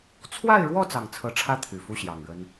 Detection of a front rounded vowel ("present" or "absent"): present